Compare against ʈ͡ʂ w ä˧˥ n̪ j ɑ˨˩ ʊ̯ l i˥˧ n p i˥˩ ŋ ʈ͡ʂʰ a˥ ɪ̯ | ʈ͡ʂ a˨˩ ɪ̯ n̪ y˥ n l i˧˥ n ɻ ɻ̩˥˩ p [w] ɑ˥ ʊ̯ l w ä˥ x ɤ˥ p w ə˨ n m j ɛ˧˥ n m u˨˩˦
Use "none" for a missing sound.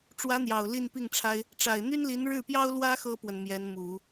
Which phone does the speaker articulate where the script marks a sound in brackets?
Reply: j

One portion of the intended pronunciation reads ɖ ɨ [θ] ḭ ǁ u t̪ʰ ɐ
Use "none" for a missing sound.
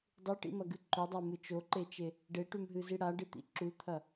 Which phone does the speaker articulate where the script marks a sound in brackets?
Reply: t̪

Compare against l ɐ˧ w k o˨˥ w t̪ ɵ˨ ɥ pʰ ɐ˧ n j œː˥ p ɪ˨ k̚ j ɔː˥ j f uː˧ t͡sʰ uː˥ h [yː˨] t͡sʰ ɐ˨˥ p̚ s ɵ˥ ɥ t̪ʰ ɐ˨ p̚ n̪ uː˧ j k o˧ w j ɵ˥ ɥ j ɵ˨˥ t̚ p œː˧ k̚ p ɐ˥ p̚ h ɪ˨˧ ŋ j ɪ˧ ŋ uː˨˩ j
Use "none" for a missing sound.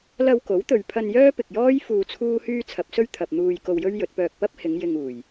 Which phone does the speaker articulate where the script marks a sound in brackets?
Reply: yː˥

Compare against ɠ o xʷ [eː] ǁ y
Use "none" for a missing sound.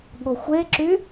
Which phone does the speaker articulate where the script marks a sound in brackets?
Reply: e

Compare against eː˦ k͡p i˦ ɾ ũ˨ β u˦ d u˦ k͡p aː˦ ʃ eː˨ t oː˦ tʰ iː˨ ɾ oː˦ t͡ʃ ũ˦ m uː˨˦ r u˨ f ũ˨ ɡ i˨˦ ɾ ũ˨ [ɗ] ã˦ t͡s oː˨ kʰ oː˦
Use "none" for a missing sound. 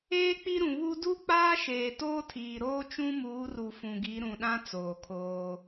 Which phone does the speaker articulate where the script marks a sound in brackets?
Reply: ɗ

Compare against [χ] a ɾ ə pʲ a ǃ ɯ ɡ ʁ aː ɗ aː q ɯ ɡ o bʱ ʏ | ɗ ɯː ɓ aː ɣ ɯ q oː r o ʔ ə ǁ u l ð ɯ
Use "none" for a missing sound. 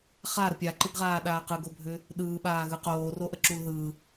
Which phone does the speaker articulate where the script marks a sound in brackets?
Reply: χ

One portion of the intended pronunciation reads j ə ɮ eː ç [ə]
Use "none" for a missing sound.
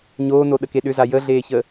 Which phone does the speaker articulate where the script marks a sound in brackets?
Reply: ə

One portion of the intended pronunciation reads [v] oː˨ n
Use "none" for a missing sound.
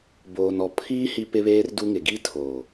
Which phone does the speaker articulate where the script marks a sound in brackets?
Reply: b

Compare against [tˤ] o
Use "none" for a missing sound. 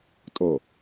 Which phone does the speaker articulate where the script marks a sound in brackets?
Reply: tʼ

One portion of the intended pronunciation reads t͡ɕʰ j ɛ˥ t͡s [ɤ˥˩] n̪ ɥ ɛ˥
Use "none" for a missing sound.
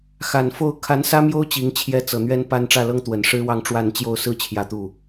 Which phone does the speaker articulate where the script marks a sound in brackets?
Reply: ɤ˨˩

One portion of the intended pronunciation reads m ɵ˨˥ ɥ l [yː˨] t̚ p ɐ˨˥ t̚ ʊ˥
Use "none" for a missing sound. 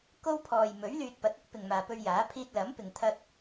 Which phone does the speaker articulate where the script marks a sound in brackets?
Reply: yː˨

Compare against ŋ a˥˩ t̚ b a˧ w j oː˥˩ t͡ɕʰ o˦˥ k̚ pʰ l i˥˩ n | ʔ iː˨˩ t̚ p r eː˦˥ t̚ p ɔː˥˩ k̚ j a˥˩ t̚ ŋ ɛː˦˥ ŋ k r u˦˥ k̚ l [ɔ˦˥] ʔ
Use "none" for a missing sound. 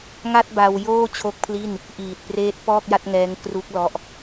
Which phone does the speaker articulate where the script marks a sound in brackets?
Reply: ɔ˦˥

